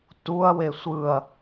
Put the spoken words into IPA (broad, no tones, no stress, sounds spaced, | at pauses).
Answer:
t u ɐ̯ w e sʷ ɯ ɐ̯